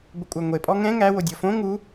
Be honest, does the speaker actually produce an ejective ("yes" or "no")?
yes